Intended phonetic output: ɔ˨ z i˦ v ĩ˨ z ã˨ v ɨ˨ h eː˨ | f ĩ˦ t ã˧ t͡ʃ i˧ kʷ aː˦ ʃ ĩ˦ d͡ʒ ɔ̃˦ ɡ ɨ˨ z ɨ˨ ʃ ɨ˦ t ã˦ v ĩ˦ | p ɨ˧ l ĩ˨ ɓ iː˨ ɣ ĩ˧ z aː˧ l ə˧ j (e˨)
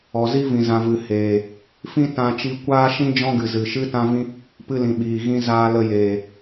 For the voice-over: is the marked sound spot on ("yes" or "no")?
no